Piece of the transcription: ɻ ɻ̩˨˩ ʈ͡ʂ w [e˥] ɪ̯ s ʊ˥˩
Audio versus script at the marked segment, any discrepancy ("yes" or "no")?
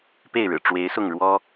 yes